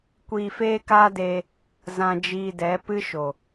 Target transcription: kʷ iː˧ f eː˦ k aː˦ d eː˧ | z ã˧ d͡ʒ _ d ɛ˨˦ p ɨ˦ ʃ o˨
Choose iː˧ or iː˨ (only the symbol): iː˧